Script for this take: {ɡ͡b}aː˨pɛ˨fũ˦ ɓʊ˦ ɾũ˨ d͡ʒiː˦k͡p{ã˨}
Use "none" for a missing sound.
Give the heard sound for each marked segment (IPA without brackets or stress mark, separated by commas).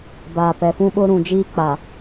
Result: b, a˨